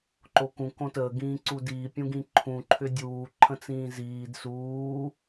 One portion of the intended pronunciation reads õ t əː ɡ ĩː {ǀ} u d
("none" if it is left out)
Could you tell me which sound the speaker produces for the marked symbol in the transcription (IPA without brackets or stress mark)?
ǀ